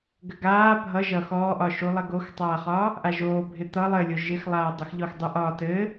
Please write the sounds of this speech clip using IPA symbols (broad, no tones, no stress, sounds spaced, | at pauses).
ɡ ɘ ɡ aː bʱ ʌ ʒ ʌ x ɔː ʔ ɒ ʃ u lˠ ɘ ɡ o x tˤ aː χ ɒ | ʔ a ʒ oː bʱ ɪ t̪ ʌ lˠ ɘ lʲ o ʒ ɪ x lˠ aː dˤ u x ʎ ɔ x dˤ u ʔ ɒː t ɘ